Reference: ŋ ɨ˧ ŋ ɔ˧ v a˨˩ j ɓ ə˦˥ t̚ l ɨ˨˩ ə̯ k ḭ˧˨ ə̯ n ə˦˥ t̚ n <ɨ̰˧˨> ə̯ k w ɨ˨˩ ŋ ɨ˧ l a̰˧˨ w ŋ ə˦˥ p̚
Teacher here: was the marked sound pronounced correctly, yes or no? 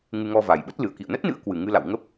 no